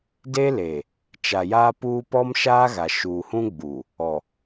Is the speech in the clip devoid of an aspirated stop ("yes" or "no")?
yes